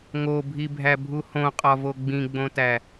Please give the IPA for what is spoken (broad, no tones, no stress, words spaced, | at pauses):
ŋobʱibʱæbʱu hõqʼɒvo ɡ͡bĩɡ͡bõtæ